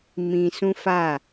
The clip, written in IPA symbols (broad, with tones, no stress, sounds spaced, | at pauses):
m ĩ˨ s ũ˦ f a˦˨